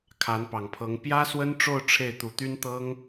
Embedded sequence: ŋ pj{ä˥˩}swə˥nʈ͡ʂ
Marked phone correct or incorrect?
incorrect